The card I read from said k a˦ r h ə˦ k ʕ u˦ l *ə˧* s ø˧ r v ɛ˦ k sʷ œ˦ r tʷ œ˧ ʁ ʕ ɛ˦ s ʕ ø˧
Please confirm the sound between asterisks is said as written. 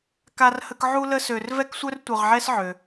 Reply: no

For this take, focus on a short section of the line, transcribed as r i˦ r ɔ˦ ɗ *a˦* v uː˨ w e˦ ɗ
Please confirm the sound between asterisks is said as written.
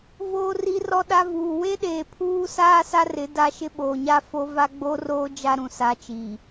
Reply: yes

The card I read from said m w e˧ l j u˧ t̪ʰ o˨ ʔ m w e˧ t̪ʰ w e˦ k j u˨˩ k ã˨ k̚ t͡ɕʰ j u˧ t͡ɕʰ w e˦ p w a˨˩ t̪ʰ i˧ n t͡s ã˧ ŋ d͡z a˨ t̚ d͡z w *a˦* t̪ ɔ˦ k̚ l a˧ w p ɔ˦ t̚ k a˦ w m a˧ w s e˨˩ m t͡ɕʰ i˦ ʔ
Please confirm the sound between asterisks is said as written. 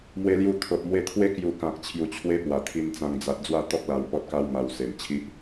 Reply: no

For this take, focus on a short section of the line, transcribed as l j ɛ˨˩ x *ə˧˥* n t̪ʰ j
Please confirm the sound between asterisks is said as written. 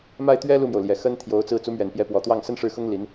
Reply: no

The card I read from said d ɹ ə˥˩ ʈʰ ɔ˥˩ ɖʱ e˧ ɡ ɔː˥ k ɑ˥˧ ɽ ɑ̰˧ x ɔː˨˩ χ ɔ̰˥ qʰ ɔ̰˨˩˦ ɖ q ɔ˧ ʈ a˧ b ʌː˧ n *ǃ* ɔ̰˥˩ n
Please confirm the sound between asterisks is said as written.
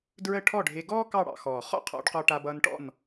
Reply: no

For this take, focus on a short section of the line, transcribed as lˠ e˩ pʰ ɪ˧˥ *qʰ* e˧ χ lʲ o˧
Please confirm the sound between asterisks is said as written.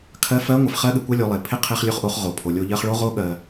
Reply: yes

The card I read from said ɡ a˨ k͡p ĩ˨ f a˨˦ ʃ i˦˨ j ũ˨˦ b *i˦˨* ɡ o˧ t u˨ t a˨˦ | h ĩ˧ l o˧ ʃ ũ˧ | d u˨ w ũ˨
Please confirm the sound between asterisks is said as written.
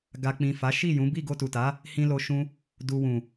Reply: yes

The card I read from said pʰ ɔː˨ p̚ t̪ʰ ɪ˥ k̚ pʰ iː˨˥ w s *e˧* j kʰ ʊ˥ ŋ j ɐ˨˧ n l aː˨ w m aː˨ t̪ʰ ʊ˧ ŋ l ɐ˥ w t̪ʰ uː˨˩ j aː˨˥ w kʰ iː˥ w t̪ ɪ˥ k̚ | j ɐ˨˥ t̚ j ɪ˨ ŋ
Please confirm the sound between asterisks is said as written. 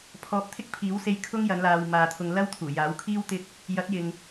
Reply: yes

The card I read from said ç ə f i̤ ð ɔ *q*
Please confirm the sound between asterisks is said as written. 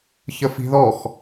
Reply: no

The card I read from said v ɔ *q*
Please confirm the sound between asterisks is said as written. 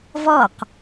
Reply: yes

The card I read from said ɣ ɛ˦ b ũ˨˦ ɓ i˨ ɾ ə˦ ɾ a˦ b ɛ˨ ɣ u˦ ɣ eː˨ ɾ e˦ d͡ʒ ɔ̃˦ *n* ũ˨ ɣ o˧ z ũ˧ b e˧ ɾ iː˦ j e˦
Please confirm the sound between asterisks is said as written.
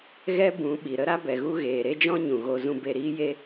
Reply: no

